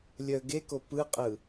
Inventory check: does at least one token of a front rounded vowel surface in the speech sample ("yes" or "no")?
yes